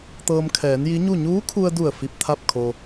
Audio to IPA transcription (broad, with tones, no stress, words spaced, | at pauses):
t̪ɤː˧mkʰɛː˩˧nji˧˥ɲu˥˨ ɲuː˧˥kʰu˧ə̯du˧˩ə̯ fi˧p̚t̪ʰa˥˨p̚kʰo˧